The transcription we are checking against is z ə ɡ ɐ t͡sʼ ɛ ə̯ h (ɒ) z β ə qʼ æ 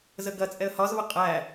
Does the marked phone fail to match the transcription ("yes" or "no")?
no